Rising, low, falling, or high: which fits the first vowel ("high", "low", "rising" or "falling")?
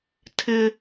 high